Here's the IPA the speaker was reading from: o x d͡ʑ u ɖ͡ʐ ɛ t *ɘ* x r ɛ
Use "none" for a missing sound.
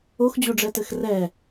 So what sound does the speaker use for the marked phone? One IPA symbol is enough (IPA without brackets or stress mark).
ɘ